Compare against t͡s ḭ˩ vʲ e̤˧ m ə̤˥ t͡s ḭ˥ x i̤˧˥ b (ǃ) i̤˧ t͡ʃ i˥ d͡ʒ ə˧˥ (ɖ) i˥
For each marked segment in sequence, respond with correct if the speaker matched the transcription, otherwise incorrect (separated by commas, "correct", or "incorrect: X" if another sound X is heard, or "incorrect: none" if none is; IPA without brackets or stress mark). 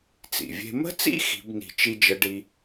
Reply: incorrect: n, correct